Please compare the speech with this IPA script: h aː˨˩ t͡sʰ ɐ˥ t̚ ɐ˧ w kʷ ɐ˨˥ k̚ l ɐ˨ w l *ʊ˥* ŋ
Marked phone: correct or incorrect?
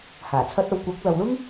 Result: correct